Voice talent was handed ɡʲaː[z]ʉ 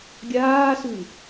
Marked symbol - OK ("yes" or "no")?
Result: no